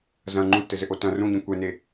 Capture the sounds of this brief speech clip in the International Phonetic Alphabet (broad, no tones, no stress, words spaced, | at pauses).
zɐ̃ ŋ͡ǃũtːɘzɘʔo tɐ̃ rũɲĩ kʷɛne